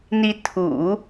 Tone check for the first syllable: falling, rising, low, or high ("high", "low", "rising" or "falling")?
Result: rising